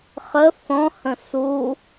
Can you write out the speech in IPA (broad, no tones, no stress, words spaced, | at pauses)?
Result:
χə θɔ̃hə̃ su